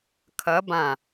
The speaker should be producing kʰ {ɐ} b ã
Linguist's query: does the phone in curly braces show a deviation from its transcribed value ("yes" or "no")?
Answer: no